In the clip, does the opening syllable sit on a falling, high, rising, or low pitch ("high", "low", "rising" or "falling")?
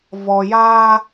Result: low